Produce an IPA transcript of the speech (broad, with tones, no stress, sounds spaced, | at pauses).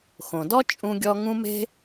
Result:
x õ˩ d ɔ˥ t͡ʃʼ ũ˧ ɡʲ ɔ˧ ŋ ũ˧ m e̤˧